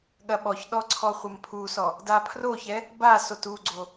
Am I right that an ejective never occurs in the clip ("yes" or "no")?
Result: yes